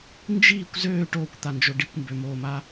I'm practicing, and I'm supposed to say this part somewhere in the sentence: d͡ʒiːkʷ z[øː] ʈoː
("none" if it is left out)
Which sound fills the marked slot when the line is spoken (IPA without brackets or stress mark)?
øː